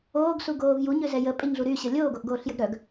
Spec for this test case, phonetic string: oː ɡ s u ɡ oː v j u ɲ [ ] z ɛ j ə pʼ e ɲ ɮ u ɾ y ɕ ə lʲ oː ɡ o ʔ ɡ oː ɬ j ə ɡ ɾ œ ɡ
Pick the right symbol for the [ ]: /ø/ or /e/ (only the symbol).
ø